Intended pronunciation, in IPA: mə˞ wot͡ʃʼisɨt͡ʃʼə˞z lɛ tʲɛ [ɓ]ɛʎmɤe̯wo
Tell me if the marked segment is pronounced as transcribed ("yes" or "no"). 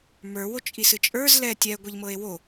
no